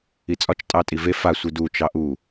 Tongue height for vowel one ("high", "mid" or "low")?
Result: high